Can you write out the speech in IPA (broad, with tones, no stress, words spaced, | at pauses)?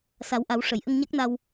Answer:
sa˨˩˦wʔa˨˩˦w ʂə˨˩˨j ʔə˧ŋɲa˦˥k̚na˧w